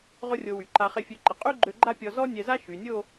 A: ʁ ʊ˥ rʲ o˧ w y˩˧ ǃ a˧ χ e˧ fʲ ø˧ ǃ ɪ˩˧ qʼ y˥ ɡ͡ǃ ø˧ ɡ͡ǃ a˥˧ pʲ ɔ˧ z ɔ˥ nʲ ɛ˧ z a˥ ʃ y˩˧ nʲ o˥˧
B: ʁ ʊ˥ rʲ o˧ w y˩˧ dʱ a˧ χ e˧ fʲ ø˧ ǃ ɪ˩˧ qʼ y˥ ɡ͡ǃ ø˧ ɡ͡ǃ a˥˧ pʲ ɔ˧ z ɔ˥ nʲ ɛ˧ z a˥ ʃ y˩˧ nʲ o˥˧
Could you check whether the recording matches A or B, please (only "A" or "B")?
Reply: A